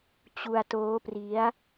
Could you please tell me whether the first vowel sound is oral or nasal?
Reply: oral